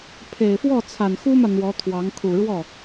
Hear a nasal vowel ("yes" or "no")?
no